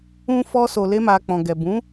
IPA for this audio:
ũ˦ f ɔ˧ s o˨ l e˧ m a˨ k͡p ɔ̃˨ ɡ ɛ˨ b ũ˨˦

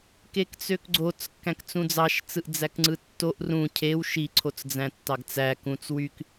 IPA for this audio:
k e k t͡s ø k ɡ͡ǀ o t͡s kː æ̃ k t͡s ũ d͡z ɑ ʃ t͡s ɯ ʔ d͡z æ k ŋ͡ǀ ɯ tː o ʔ r ũ cʰ e w ʃ i ǀʰ o t͡s d͡z æ̃ tː ɑ ɡ t͡s æ k ũ t͡s w y k

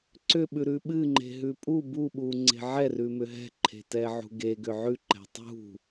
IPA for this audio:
ǀ ʏ ɓ ʉ ɾ ʉ ɓ ɨ ŋ͡ǃ e̤ ɦ ʉ pʼ u b u ɓ u ŋ͡ǀ e̤ ʕ ɛ r ʉ m ʏ ɦ ɛ̤ ǃʰ e̤ t ɛ ʕ ṳ ɡ e ɡ ʏ ʕ ʉ ǃ ɛ̤ tˤ ṳ

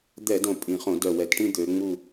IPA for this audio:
d̪ ɛ˧˩˧ d õ˨˩ pʼ ĩ˨˩ χ õ˧˩˧ d œ˨˩ w ɛ˧˩˧ t ʈ ĩ˥˧ d̪ ø˨˦ ŋ͡m u˥˧

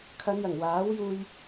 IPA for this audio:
kʰ ɐ˨˧ n j ɐ˨˩ ŋ w aː˨˥ w j uː˧ j

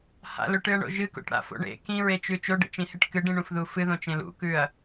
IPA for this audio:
h a̰ l ɵ ʈ ɨ ɐ̯ ɳ o̰ ʒ ɨ k o̰ ʈ ɽ a̰ f o̰ ɳ ḛ k ĩ ɹ e t͡ʃ ʉ t͡ʃ o ɖ ḛ t͡ʃ ĩ h e ʈ k ɨ ɖ ĩ ɳ ũ f ð u f ɨ ð õ t͡ʃ ẽ l ṵ k ʉ ɐ̯

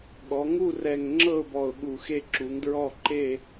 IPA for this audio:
ɠ ɔ˩˧ ŋ u˦˨ r ɛ˨˩ ŋ ŋ͡ǁ ɤ˦˨ ʊ̯ b ɔ˨˩ ʊ̯ ɠ u˨˩ x e˦˨ ǁ u˩˧ ŋ d ɹ ɔ˦˨ ǃ e˦˨

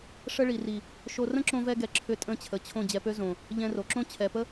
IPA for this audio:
ʂ ə˧ ɭ i˨ r i˨ | ʃ o˧ r ə̃˦ ǁ õ˧ v ɛ˧ ɡ ɛ˨ ǁʰ ʏ˧ tʼ ə̃˦˨ t͡ɕʰ ə˨ t͡ɕʰ õ˦˨ d͡ʑ ɛ˧ p ø˦ z õ˨ | ʎ ɛ̃˧ r o˨ ǁ õ˦ t͡ɕʰ ɛ˨ p ə˦

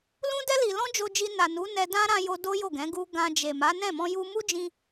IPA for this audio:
l ũ˦ d ɛ˦ l i˧ l ɔ̃˦ d͡ʒ o˧ d͡ʒ i˧ n a˨ n u˨˦ n ɛ˧ d ã˦ ɾ ã˧ j o˧ d o˦ j o˦˨ ɡ ɛ̃˨˦ ɡ u˧ ɡ ã˧ d͡ʒ e˨ m a˨˦ n ɛ̃˦˨ m ɔ̃˧ j u˧ m u˦ d͡ʒ ĩ˧

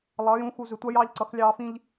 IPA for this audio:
lˠ ʌː˨˦ j ũ˨˦ x u˨ z ʏ˨ tʷ a˦ j ɑː˦ ʎ ǀ ʌ˨˦ x lʲ ɑː˦ f ĩ˦ ʎ

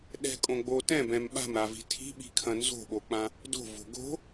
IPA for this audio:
ɗ ɛ̤ kʼ õ ɡ͡b o t ɛ̃ b ɛ̃ m ɓ a̤ m ɾ a v i̤ tʰ i̤ ɓ i̤ kʰ ɐ̃ n z o̤ ɓ o k͡p ã | d o̤ v o̤ ɡ o̤

